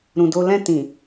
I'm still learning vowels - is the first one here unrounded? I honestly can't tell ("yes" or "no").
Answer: no